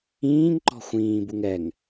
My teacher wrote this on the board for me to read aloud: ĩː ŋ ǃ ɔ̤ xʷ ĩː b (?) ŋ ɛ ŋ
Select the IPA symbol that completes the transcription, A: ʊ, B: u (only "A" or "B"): B